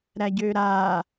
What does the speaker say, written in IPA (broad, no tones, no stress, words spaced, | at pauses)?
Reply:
ɾæɟøɾa